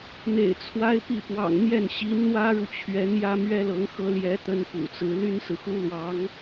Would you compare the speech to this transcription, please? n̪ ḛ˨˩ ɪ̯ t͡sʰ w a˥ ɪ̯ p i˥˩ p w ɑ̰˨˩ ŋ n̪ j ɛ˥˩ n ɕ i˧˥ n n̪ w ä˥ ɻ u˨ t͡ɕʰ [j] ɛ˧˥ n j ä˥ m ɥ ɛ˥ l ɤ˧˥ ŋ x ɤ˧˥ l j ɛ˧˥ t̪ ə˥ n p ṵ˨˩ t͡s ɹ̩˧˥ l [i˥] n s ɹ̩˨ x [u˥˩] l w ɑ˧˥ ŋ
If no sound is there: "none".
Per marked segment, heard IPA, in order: ɥ, y˥, u˥

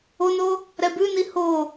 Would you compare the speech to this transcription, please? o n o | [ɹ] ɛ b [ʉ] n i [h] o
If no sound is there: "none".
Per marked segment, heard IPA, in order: ɾ, ʉ, h

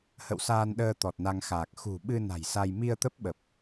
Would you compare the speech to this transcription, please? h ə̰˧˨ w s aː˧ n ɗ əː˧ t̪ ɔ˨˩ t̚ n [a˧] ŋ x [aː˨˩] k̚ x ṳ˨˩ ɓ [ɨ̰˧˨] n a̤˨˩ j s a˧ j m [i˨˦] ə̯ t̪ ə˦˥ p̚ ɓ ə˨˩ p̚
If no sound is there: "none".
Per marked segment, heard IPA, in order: a˧, aː˨˩, ɨ˧, i˧

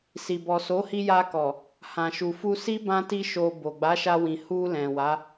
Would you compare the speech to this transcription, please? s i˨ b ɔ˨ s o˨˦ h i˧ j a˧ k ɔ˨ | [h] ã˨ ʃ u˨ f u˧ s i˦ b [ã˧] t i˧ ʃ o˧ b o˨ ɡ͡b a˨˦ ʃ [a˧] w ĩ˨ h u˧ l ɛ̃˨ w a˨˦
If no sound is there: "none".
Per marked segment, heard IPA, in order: h, ã˧, a˧

